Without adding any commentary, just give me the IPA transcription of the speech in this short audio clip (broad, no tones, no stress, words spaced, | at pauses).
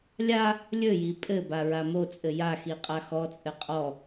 lʲa | lʲɵji pʼɘba ɹamot͡sʼɘ jaxi qʼaxɔt͡sʼɘ qʼɔ